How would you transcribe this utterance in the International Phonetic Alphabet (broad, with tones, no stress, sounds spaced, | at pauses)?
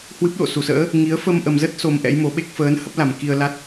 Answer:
h w ɨ˦˥ p̚ ɗ o̰˧˨ s u˧˩ s ə̰ː˧˥ | ŋ i˨˦ ə̯ f ə˧ m ʔ ə˨˩ m z ə˦˥ t̚ s o˧ m ʔ ɛ̰˧˥ j m o˨˦ ɓ e˦˥ k̚ f əː˨˦ n h ə˦˥ p̚ l a˧˩ m k i˧ ə̯ l a˦˥ t̚